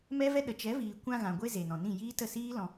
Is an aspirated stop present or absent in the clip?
absent